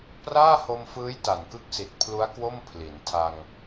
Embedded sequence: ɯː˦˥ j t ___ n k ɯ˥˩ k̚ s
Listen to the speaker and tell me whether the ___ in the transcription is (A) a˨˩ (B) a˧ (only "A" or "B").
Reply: A